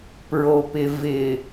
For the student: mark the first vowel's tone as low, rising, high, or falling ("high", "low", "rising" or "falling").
low